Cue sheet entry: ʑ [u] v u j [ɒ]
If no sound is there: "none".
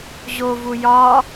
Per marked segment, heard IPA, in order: o, ɒ

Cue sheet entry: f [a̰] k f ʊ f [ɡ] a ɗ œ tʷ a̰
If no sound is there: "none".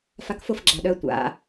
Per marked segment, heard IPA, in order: a, ɡ͡ǁ

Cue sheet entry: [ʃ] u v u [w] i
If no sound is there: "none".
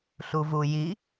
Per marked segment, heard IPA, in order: ɬ, j

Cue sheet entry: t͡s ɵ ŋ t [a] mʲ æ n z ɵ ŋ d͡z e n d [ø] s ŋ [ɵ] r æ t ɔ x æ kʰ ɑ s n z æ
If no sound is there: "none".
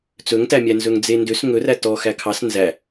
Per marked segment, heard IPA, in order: æ, ø, ɵ

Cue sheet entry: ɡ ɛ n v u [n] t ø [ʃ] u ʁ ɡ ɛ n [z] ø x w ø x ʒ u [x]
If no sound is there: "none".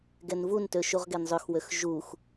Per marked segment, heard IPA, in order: n, ʃ, zˤ, x

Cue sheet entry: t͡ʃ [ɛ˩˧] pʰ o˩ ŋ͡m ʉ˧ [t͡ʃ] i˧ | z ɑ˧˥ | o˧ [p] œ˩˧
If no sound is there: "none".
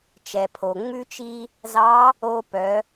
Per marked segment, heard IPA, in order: ɛ˩, t͡ʃ, p

